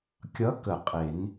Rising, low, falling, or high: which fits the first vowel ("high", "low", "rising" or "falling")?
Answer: rising